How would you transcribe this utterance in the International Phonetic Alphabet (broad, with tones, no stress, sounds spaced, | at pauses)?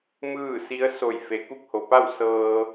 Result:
m ɯː˥˨ s i˧˥ ə̯ s o˧˩ j f e˩˧ k u˧˥ k̚ h o˩ p a˥˨ w s ɤː˧